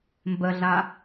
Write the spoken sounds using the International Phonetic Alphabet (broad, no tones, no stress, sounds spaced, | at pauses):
m b ə ɮ a